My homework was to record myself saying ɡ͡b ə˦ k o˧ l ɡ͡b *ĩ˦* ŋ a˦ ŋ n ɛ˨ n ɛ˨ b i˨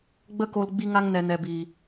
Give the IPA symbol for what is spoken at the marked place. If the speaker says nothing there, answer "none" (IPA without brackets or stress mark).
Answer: i˦